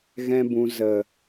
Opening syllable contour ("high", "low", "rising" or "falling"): high